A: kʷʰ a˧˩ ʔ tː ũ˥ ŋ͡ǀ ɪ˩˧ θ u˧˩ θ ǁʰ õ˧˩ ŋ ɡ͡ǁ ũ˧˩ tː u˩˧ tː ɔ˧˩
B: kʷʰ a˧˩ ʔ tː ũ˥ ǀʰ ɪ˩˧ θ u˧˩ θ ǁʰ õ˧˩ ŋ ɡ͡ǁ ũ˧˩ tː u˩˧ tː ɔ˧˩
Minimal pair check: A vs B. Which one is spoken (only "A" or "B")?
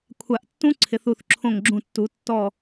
B